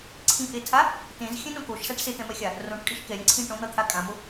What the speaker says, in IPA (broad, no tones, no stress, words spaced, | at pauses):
ǀʰĩʔetʰa | tẽzxʲɛ̃nõ koʃsaʈ set̪ɛ̃mɛxʲa | rõʈkʼeʃ kɛɾʲɛ̃ǀʰĩ ʈõn̪ʌt̪ʰa kʼãmo